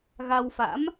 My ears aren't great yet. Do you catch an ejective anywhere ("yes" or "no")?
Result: no